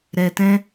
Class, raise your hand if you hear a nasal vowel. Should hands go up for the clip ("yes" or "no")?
yes